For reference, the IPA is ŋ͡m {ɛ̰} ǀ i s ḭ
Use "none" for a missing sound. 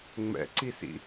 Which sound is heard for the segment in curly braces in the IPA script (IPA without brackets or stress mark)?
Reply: ɛ̰